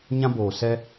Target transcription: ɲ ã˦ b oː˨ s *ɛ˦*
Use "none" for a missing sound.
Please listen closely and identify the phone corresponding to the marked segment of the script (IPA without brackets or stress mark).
ɛ˦